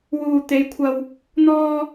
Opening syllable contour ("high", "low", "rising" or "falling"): low